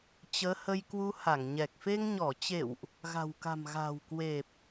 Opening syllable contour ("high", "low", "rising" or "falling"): rising